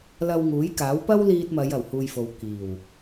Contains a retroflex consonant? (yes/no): no